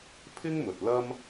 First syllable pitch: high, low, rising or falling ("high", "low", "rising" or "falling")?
high